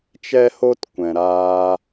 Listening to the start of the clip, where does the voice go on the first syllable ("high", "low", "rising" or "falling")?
high